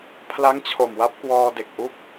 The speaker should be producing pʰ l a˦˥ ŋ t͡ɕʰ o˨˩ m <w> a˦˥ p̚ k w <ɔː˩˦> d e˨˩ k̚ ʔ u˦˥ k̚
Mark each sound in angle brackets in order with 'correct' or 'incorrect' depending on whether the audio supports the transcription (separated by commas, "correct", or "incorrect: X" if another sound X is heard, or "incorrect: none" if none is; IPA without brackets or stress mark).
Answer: correct, incorrect: ɔː˧